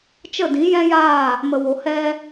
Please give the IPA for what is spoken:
t͡ʃə˦˨dĩ˨˦jɛ̃˦jaː˦˨ | mə˨wo˨ hɛ˦

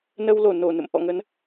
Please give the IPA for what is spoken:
nə˧w lo˧˩no˧˩ nə̰˧˨mʔɔ̰˧˨ŋə˨˦n

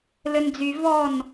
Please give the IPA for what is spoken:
lɘnd͡zy vɔn

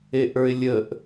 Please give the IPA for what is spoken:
eʔə˞ɪ̯lʲəʔ

